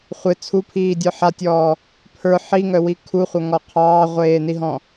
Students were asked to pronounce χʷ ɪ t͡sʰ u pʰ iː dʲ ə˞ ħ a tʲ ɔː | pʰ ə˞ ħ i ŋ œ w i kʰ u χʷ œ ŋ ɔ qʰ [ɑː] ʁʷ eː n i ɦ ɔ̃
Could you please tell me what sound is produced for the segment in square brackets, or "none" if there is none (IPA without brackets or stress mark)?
ɑː